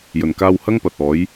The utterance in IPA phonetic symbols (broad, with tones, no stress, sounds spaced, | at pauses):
j ɵ˨˩ n k aː˧ w h ɐ˥ ŋ p ɐ˨ t̚ ɔː˨˥ j